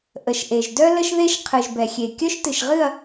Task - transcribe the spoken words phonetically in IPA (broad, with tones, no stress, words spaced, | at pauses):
ʔə˨ʃʔe˨ʒ dœ˦lə˦ʃðe˦ʃ qʰɨ˨ʒbɛ˨xʲe˨ kʲœ˦ʃtɨ˨ʃʁɨ˦˨ɐ̯